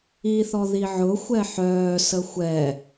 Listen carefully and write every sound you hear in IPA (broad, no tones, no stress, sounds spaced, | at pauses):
i θ ɔ ð i ʕ ʊ xʷ ɛ ħ œː s ə xʷ ɛ